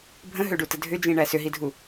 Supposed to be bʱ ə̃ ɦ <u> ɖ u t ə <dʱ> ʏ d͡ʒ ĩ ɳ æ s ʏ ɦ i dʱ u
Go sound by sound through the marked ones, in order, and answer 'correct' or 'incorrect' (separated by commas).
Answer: incorrect, correct